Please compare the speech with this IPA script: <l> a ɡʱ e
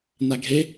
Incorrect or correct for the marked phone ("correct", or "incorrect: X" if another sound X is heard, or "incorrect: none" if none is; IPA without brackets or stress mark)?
incorrect: n